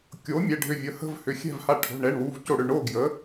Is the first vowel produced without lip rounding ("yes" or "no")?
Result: no